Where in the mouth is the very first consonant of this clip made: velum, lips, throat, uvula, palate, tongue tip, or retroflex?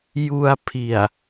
palate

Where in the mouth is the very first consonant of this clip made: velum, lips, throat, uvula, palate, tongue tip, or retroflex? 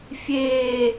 lips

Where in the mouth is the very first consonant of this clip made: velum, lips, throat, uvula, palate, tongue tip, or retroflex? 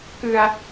velum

